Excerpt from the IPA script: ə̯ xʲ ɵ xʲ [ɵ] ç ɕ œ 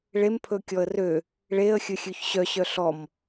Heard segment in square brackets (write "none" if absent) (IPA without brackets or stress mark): ø